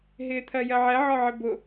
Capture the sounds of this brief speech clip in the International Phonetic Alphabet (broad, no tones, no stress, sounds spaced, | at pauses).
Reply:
ɦ ɪː t̪ʰ ɜ j ɜ ʕ ɛ ʕ ɒ ʕ ɪ b ʊ